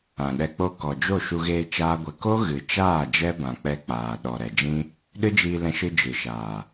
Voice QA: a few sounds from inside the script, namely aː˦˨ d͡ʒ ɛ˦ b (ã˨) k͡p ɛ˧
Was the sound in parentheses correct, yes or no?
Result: yes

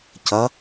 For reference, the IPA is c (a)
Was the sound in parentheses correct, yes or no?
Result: no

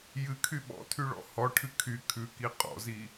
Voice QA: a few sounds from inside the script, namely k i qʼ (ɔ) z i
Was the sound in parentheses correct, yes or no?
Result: no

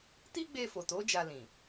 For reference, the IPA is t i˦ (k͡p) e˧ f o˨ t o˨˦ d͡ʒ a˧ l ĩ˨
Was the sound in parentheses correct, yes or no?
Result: no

